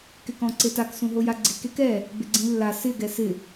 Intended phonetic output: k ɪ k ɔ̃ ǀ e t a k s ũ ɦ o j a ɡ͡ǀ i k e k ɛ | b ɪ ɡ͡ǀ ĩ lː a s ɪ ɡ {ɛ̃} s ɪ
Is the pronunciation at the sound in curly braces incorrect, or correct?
incorrect